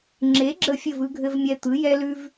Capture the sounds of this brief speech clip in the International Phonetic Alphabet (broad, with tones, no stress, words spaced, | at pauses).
ŋ͡ǁe˩˥ɡ͡ǁə˧˩fʲɘ˧˩v ɯ˧ɡʱɘ˧vmʲɛ˧t̪ɯ˩˥ jɛ˧lʉ˧v